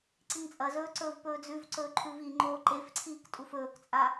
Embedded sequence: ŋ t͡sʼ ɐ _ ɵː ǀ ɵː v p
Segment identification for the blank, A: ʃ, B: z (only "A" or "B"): B